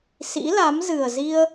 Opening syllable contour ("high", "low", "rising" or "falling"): rising